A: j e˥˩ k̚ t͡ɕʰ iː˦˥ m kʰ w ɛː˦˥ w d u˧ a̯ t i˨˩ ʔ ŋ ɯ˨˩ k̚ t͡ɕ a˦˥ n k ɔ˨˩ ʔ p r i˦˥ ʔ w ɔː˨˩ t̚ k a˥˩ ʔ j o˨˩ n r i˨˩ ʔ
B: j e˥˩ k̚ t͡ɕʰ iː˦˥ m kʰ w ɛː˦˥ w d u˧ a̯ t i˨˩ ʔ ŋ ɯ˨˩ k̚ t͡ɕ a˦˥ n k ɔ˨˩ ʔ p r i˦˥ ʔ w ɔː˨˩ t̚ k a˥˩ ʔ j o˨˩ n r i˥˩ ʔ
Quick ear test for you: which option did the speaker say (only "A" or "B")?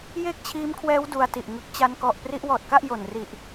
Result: A